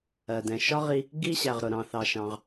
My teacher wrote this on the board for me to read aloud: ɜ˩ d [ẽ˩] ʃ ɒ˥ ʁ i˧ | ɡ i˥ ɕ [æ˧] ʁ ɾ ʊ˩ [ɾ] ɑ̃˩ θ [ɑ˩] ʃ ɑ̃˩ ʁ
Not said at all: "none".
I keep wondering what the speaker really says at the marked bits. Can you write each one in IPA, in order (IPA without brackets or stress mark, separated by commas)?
ɛ̃˩, æ˩, ɾ, ɑ˩